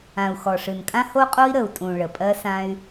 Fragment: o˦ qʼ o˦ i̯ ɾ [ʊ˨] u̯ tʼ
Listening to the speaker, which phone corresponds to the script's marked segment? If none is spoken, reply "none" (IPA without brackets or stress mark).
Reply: ə˨